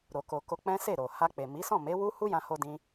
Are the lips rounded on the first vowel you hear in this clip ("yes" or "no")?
yes